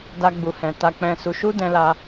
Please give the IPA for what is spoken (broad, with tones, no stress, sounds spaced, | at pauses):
d a˦ ɡ͡b u˧ h ɛ̃˧ t a˧ k͡p ɛ̃˧ s u˧ ʃ u˦ d ɛ̃˧ l a˧